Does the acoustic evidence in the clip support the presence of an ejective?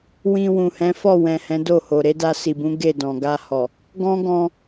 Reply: no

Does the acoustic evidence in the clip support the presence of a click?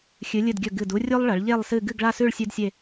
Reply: no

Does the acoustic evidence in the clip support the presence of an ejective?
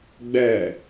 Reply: no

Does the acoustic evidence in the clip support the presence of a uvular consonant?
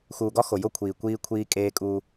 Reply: no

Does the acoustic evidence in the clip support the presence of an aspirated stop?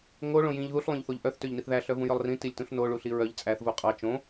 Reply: no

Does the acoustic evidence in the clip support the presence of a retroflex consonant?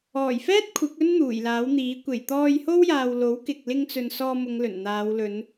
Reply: no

